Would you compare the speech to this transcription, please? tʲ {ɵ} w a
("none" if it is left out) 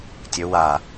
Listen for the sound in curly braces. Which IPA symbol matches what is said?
ɵ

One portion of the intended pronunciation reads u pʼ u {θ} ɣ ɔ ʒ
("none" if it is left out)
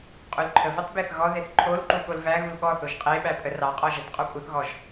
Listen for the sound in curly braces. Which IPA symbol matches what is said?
θ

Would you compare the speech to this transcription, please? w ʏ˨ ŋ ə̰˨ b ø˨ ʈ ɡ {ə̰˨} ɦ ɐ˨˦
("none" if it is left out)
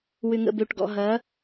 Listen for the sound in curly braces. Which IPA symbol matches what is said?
ɔ̰˨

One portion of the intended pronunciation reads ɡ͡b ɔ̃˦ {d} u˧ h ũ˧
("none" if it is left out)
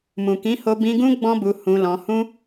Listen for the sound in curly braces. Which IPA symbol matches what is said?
b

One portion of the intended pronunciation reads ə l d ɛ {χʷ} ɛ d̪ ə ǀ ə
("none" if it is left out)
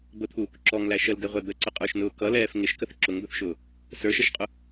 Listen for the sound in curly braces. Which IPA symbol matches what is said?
ʁʷ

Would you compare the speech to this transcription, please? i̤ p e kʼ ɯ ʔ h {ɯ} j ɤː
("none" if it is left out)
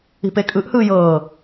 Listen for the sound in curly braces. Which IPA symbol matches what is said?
ɯː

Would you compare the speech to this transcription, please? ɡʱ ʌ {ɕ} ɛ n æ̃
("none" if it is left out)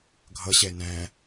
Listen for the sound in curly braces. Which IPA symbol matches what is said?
ɕ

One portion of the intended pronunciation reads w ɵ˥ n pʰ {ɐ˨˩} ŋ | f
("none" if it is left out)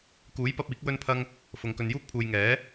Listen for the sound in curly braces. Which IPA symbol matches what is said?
ɐ˥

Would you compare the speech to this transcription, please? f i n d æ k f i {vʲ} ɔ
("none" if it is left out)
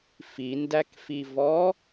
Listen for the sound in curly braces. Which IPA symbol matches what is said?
v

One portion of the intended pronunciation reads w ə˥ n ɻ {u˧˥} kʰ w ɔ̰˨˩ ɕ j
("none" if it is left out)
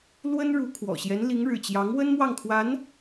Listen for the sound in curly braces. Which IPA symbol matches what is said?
u˧˥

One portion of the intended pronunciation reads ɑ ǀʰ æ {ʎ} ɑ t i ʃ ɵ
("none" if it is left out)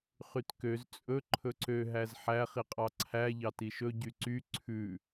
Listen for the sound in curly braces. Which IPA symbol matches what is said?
ʎ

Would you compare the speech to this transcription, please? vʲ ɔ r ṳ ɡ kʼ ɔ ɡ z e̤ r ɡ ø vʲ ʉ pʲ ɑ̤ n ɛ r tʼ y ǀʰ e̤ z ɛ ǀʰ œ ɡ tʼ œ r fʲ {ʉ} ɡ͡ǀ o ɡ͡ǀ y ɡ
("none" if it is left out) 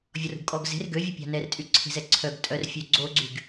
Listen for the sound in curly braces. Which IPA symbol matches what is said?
ø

